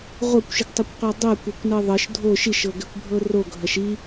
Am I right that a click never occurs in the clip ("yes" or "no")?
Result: yes